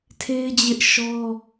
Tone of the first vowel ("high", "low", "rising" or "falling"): high